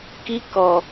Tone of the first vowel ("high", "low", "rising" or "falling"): high